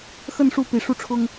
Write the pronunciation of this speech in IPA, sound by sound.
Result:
x ə˥˨ n ʂ u˥˨ p i˨˩ ʂ u˥˨ ʈ͡ʂʰ ʊ˦ ŋ

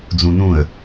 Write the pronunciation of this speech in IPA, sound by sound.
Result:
d͡z ũ n ũ ə̯

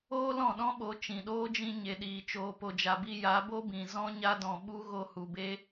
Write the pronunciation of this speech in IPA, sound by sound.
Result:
oː˦ l ɔ̃˦˨ ɗ ɔ̃˦ ɓ o˨˦ t͡ʃ ĩ˨ ɗ oː˦ d͡ʒ ĩ˧ ɲ e˨ ɗ iː˨ t͡ʃ oː˨ p o˨ d͡ʒ a˨ b i˧ j a˨˦ b o˦ b ĩ˨ z ɔ̃˦ ɲ a˦ d ɔ̃˨ ɓ u˦ ɣ o˧ h u˨ b e˦

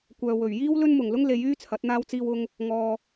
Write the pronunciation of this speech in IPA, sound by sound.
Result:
kʷ œː˨ w ɵ˨˩ ɥ j iː˥ w l ɵ˥ n m ʊ˨˩ ŋ l ʊ˥ ŋ l e˨˧ j yː˥ t͡sʰ ɐ˨˥ t̚ n̪ aː˥ w t͡s iː˧ w ʊ˧ ŋ | ŋ ɔː˨

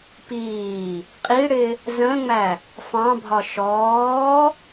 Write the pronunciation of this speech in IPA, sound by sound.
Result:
p iː | qʼ i ɽ ɪ | z ə̃ ŋ͡m æ | f ɑ̃ bʱ ɒ ʃ ɔː

